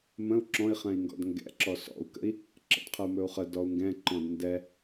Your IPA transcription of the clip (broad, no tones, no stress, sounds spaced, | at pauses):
m ə̃ u̯ ǁ ɔ̃ i̯ χ ɛ̃ i̯ ŋ ɡ ɔ̰ d ŋ ɡ ɛ̰ ǁ ɔ s ɔ̰ u̯ k ə̰ i̯ | ǁ ə̰ d qʰ ə u̯ m ɵ u̯ χ ə d ɔ u̯ ŋ ɡ ɛ̃ ǃ ɔ̃ d n d ɛ